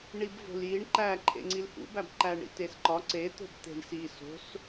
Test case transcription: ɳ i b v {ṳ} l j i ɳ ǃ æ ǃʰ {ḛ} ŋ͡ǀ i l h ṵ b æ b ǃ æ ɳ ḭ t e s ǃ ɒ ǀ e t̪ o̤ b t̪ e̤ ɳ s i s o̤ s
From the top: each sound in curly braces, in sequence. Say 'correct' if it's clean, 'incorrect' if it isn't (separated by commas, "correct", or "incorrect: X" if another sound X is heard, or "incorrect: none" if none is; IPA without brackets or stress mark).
incorrect: o̤, correct